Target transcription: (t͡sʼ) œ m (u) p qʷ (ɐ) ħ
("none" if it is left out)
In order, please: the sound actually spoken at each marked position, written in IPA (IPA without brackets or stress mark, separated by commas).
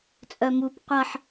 t͡sʼ, u, ɐ